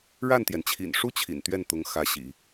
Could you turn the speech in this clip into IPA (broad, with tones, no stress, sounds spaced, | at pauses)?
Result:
ɻ a˥˩ n t̪ j ɛ˩ n t͡ɕʰ ḭ˨˩ n ʂ u˥ t͡ɕʰ ḭ˨˩ n t̪ ɥ ɛ˥˩ n t̪ ʊ˧˥ ŋ x ä˧˥ ɕ ḭ˨˩˦